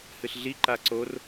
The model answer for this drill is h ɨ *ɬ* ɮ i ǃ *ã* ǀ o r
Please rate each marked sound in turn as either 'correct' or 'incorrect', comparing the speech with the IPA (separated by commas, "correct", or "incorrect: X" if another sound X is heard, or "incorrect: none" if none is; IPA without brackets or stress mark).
correct, incorrect: a